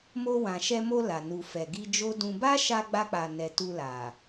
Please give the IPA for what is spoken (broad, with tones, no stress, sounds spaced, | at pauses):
m o˧ w ã˨ ʃ ɛ˧ m o˧ l a˨ n u˨ f ɛ˨ ɡ i˧ d͡ʒ o˦ d ũ˧ b a˦ ʃ a˧ ɡ͡b a˧ k͡p a˨ n ɛ˨ t u˧ l a˨